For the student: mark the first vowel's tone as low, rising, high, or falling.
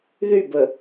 falling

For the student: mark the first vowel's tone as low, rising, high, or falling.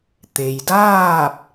low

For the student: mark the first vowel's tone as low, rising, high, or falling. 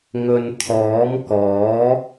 low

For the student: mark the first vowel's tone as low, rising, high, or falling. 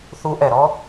rising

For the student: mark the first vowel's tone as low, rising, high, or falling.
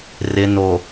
low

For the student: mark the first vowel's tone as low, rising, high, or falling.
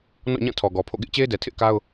falling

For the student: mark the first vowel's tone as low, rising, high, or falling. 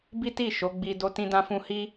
high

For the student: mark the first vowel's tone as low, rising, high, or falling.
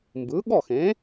rising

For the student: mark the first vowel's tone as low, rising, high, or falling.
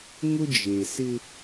high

